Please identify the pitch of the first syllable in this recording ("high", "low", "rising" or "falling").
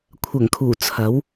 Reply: low